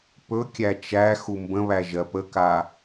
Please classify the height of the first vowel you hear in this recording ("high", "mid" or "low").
mid